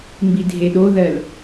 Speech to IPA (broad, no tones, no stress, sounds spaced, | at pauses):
m b i dʱ e ɗ o ð ɜ l